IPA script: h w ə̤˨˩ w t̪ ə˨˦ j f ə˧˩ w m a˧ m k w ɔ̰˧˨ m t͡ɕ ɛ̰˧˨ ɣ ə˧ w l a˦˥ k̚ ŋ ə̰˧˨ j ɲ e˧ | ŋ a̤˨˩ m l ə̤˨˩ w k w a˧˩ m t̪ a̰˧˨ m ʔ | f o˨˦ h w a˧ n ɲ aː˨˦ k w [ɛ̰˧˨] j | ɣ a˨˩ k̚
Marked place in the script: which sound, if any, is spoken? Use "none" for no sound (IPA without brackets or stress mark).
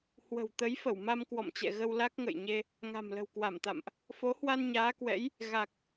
ɛ̰˧˥